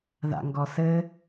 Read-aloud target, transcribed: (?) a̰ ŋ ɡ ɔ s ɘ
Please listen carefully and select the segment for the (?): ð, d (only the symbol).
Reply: ð